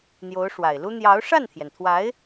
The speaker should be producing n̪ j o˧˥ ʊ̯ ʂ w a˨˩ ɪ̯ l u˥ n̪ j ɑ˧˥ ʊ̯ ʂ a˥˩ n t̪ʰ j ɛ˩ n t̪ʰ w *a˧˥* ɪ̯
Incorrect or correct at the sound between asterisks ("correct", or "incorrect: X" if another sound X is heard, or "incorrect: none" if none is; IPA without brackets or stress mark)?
correct